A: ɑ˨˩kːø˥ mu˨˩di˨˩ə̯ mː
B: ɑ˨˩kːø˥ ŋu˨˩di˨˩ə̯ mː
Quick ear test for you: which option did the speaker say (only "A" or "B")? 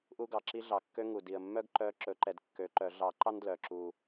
B